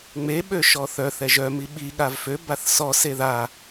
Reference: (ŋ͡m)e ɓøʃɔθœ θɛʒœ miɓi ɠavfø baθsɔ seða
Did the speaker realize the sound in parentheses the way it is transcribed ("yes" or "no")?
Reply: yes